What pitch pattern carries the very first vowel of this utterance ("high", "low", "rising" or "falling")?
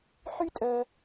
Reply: high